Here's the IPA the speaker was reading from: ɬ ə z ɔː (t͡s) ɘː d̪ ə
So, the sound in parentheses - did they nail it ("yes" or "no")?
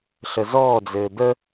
no